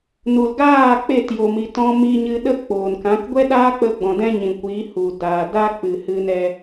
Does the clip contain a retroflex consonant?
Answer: no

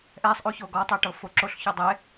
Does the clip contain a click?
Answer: yes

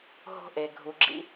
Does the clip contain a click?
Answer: yes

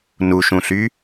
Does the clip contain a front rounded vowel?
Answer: yes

